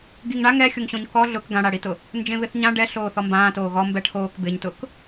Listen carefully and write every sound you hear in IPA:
ɡ i ŋ ɳ a ŋ ɛ xʲ ʊ ŋ ɕ õ ɲ k ɔ ɮ ʊ k ɡ ã ɽ a ɽ i t ʊ | n d͡ʒ ẽ β ɪ θ ɲ ã ɖ ɛ ɬ oː θ ɔ m b ãː t oː ɣ ɔ m b ɛ ʈʰ oː k b ɪ ɲ t ʊ k

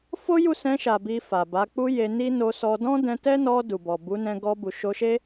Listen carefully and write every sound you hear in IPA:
f o˦ j u˦˨ s ɛ̃˧ ʃ a˨ b i˧ f a˨ b a˨˦ k͡p u˧ j e˧ n i˦ n o˧ s ɔ˧ d ɔ̃˦ d ɛ̃˧ t ɛ˦ n ɔ˧ d u˨ b ɔ˨ b u˨˦ n ɛ̃˧ ɡ ɔ˧ b u˨ ʃ o˧ ʃ e˦

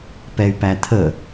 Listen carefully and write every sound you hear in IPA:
p ɛ y̯ p æ t̪ʰ ə

